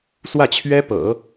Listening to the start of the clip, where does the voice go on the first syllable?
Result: falling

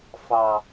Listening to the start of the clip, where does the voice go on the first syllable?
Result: low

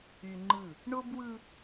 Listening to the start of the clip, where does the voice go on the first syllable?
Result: low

